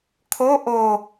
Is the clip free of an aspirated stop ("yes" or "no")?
no